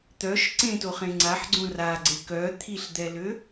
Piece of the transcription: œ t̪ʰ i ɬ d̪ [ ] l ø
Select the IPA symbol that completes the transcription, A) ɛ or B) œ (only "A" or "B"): A